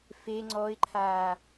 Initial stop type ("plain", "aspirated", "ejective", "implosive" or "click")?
click